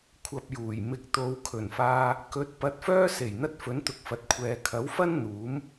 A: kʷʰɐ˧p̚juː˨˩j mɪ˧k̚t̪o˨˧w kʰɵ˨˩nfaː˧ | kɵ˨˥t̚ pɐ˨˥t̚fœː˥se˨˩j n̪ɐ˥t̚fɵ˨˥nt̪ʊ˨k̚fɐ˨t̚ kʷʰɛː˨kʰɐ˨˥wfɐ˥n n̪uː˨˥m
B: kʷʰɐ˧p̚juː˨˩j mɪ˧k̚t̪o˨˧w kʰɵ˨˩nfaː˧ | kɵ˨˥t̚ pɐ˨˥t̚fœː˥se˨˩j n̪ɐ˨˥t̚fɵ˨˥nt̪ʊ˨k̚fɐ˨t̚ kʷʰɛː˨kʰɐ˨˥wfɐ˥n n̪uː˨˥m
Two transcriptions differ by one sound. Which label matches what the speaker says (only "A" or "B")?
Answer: A